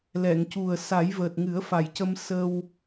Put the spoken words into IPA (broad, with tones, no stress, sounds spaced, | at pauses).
l ɛ˨˩˨ ŋ c u˨˩ ə̯ s a˨˩˦ j v əː˨˩ t̚ ŋ ɨ˨˩˦ ə̯ f a˨˩ j c ə˧ m s ə˧ w